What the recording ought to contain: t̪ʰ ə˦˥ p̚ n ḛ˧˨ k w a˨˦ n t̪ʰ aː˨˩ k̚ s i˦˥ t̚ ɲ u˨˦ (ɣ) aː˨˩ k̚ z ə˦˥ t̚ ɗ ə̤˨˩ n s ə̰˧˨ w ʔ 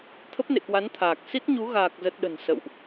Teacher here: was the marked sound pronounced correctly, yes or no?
yes